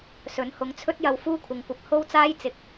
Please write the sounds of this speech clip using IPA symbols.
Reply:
s ɵ˨˥ n h ʊ˨˥ ŋ t͡sʰ ɵ˥ t̚ j ɐ˧ w f uː˥ kʷʰ ɪ˨ ŋ kʷ ɐ˧ p̚ h o˥ w t͡s aː˥ j t͡s ɪ˨˥ k̚

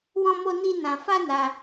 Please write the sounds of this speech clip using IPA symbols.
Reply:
w ɔ̃˦ m o˦ n i˦ n ã˧ f a˦ n a˧

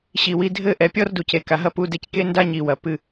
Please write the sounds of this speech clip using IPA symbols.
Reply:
ɕ i˨ w i˧ dʱ ɘ˦˨ ʔ ɛ˨ pʲ ɔ˦ r d u˨ c e˨ k a˨ ɦ ɐ˦ p u˧ d e˧ c k e˦ n d a˦ ɲ i˨ w ɐ˨ p ɨ˧

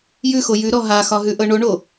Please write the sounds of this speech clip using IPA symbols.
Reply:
j ʉ x o j ʉ ɾ ɔ ɦ a x ɒ ɦ ʉ ʔ ɤ ɳ o ɳ o

